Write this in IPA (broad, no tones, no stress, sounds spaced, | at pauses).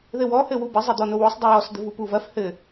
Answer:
ð ɘ w ɔ h ɘ w u b ɘ zˤ ɛ d̪ ɔ n o w o sˤ dˤ ɐ j ɔ s d̪ ɘ v u p u v ɐ f h ɘ